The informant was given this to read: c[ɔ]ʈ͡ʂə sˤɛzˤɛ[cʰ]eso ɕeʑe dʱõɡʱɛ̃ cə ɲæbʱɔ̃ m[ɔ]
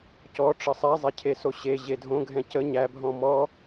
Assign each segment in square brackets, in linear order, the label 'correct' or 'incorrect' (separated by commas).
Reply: correct, correct, correct